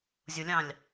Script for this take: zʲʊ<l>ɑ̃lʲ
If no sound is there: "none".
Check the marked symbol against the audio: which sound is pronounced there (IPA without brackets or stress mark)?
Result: lʲ